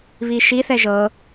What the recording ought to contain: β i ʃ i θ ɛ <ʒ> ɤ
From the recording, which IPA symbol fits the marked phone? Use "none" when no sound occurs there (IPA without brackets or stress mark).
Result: ʒ